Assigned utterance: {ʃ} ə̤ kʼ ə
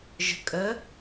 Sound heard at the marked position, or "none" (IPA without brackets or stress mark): ʒ